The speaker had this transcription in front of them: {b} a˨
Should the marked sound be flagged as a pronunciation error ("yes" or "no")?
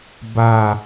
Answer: no